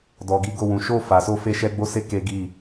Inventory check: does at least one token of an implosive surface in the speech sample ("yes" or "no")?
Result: no